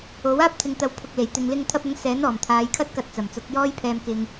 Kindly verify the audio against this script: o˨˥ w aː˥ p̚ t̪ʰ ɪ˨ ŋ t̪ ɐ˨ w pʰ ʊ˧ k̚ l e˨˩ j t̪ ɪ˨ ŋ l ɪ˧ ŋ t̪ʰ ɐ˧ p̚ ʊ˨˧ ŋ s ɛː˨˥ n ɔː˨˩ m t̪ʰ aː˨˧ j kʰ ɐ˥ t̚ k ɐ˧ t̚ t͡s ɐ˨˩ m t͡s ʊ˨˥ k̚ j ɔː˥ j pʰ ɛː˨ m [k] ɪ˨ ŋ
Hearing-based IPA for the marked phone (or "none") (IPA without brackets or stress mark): k